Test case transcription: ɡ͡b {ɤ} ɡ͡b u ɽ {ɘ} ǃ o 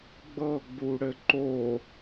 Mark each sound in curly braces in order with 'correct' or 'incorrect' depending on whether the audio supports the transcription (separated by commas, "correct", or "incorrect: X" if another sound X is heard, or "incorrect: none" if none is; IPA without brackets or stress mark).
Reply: correct, correct